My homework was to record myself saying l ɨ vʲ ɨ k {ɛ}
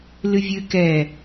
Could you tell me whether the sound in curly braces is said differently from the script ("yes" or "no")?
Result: no